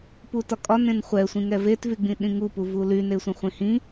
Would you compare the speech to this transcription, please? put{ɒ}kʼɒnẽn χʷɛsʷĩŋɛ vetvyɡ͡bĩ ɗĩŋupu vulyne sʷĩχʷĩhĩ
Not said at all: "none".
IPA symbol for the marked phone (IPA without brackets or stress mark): ɒ